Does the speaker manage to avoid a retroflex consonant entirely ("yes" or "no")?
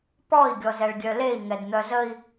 no